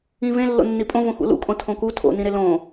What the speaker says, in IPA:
ĩvẽ lːo̰nːipʼõvõ xṵlṵkʼõ tʰõku tʰo̰nĩɾe lõ

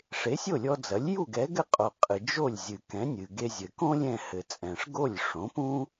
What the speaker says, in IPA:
ʂe˩˥sʲo˥˩lʲɔ˧d͡zɐ˩˥lʲ ju˥˩ɡɛ˩˥ɡɘ˥˩qʼo˩ qʼɨ˩ d͡ʒo˥˩lʲzʲɨ˩ kɛ̃˩˥nʲɨ˩ɡe˧ zʲɘ˩kõ˥ lʲɛ̃˥˩hɘ˩t͡sʼɛ̃˩ʂ ɡo˥˩lʲʂõ˩˥pũ˥

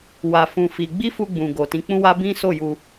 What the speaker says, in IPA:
wa˧fũ˧ fi˧ ɡ͡bi˦fu˧ɡ͡bũ˨ ɡo˨tĩ˨˦k͡pũ˦wa˦ bĩ˦so˦˨ju˧

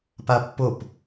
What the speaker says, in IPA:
papːop

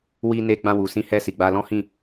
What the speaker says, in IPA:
wi˧ne˧ ɡ͡bã˧wu˨sĩ˧hɛ˧ si˨ɡ͡ba˧lɔ̃˦hĩ˦˨

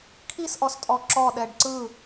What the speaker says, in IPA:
kʰisʔɔstʼɔ ǁɔɗɛɖ ǀɯ

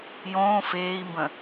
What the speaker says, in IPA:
jõː feːi̯mbə̃

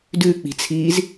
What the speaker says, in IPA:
dʉk͡pi̤t͡sʰiːz

